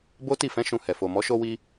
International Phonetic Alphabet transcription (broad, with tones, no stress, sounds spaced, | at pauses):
b o˦ t i˦˨ f ɛ̃˨˦ ʃ ũ˧ h ɛ˨ f o˨ m ɔ˨˦ ʃ o˦ w i˦